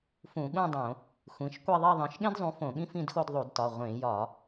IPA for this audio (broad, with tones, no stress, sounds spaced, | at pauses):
f ũ˧˩˧ ɠ ũ˥˧ dˤ õ˧˩˧ | xʷ ĩ˩˧˩ ʃ kʷ e˥˧ ðˤ i˥˧ ðˤ ĩ˩˧˩ ʃ ɠ ẽ˥ d zˤ ũ˨˥ f õ˧˩˧ ɠ ĩ˥ f ĩ˥˧ d x o˥˧ d ðˤ u˧˩˧ d t ɒ˩˧˩ ʁʷ ẽ˧˩˧ j ɒ˧˩˧